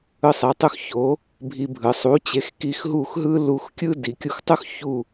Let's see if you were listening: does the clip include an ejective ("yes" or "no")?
no